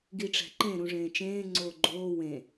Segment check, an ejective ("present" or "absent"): absent